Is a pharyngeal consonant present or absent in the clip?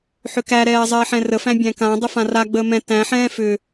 present